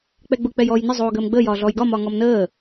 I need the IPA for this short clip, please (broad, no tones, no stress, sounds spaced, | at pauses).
k͡p ɛ ɡ͡b ʊ k͡p ɛ j ɔː j n ə zˤ oː ɡ əː m ɡ͡b əː j ɒː ɮ ɔː j ɡ ɒ m ɒ ŋ ɔ m n əː